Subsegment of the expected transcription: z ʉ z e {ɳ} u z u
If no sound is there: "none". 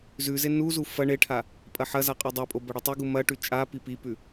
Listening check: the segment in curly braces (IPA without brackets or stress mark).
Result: n